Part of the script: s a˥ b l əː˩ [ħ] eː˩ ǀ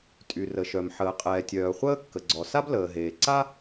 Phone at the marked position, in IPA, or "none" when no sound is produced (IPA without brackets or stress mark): ɦ